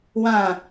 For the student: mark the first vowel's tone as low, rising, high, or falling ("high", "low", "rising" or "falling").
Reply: falling